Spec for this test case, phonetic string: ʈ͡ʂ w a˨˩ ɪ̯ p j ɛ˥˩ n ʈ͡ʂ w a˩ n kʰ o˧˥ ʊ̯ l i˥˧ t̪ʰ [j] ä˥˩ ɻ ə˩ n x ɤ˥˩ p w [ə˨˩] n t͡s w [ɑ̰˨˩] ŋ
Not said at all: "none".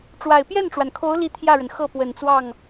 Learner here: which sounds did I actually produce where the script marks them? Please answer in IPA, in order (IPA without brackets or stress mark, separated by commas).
j, ə˨˩, ɑ˥˩